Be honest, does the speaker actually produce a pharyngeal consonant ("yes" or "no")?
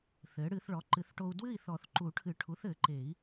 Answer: no